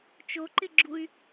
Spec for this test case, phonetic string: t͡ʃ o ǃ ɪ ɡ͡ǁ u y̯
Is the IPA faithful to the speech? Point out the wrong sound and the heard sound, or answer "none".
none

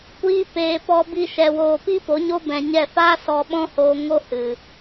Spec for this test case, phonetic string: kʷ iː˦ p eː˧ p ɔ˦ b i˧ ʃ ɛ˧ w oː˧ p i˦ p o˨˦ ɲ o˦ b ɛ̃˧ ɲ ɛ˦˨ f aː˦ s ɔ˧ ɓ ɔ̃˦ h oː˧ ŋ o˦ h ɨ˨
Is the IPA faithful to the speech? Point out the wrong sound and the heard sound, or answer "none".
none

